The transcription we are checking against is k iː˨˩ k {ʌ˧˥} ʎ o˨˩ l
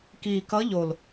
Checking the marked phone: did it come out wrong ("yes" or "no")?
no